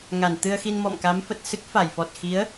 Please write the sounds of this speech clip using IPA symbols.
ŋa˧˩n t̪ɨ˧ə̯xi˧n mɔ̰˧˨mka˨˦mfə˨˩t̚ sɨ˦˥k̚fa˧˩jfɔ˨˩t̚ xi˨˦ə̯

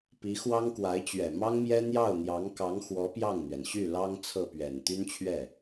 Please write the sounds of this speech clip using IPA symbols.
pi˧˥xwɑ˥ŋkwa˧˥ɪ̯t͡ɕɥɛ˨˩ mɑ˥ŋmjɛ˥ n̪jɑ˥˩ʊ̯n̪jɑ˧˥ŋ kɑ˧˥ŋxwɔ˧˥ pjɑ˥˩ŋn̪ɥɛ˩n ɕy˥˩lɑ˥ŋ t͡sʰɤ˥˩pɥɛ˨˩n t̪y˥nt͡ɕʰɥɛ˥˩

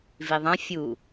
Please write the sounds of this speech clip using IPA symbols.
viðˤã fʲu

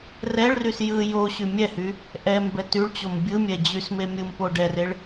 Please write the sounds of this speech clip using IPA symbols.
rɛɭrys jɯ joɕy mʲɛhy | ʔɛmbɛ tyɭt͡ɕom bʲɯ mʲɛd͡ʑysme mʲɯmpo ɖɛreɭ

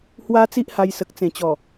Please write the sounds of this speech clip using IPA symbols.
hwa˧ t͡si˦ʔha˧jsə˨k̚ t͡sẽ˨˩t͡ɕɔ˨˩

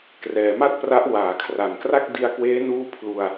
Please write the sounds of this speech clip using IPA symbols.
krɛː˩˦ma˥˩t̚pra˦˥ʔ waː˨˩kʰra˨˩nkra˥˩k̚ di˧a̯kweː˦˥nuː˦˥ pʰlu˧a̯

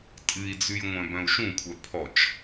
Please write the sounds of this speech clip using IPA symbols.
tʼɨi̯d͡zʉj ŋʷœ̃bœ̃u̯ʃũkʷʰœ pʰɔt͡ʃ

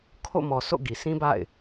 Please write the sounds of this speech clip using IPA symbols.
kʰo̰˦˨mɔ˨so̰˦˨ ɡi˨ sĩ˦ba̰˦˨ɪ̯

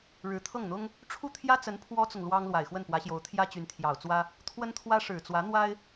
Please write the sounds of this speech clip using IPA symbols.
ɻɻ̩˧˥t̪ʰɤ˥˩ŋn̪ʊ˥ŋ | ʈ͡ʂʰu˥˩t̪ʰjä˥t͡sə˧˥n pʰwɔ˥t͡sʊ˨ŋ lwɑ˥ŋ lwa˨˩ɪ̯xwə˥˩npwä˧˥ɕjo˧˥ʊ̯ t̪ʰjä˥t͡ɕy˧˥nt̪ʰjɑ˨˩ʊ̯t͡swä˥ | t̪ʰwə˥nt̪ʰwä˥ ʂɻ̩˨˩t͡swä˧˥n̪wa˥ɪ̯

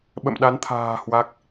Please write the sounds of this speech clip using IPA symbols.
ɓə̰˧˨mɗa˨˦nt̪ʰa̤ː˨˩ hwa˦˥k̚

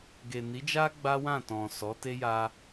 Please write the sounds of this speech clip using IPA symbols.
ɡe˨ni˨˦d͡ʒa˦ ɡ͡ba˦wã˦˨tɔ̃˨ sɔ˨˦te˦ja˧

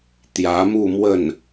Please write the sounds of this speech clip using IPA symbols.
t̪jä˧˥mu˥˧ mwə˥˩n

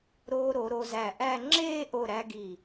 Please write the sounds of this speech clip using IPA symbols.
ɾoː˧ɾo˩˧ ɾo˧zæ˧˩ʔæ˥˧ ŋ͡ǁeː˥˧ʔo˧˩ɾæ˧ ɡi˧˩

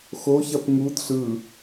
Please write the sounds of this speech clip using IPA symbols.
xoçɐp ŋud ɬɯ

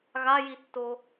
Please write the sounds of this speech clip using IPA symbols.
ɣajitːo

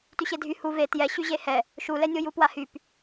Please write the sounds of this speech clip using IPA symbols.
tyɕedʱy hu ve tjɛɕyʑe hɛ | ʃulɛnʲo jupwahyp

